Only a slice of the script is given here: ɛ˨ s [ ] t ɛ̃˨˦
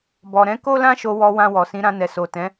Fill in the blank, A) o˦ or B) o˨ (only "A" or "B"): B